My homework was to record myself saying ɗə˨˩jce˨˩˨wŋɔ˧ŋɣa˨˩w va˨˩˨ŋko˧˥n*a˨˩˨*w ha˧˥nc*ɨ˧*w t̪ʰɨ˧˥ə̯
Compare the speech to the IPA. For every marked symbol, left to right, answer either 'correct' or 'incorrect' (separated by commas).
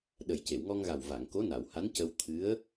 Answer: correct, incorrect